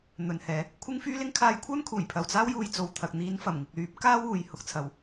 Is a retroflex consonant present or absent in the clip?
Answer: absent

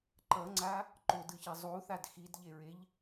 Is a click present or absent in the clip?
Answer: present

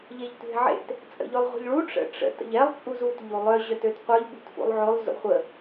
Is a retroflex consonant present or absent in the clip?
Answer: present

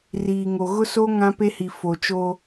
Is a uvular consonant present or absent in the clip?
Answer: absent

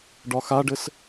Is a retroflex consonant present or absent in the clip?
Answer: present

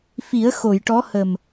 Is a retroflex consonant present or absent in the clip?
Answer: present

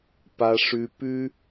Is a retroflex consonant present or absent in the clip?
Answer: present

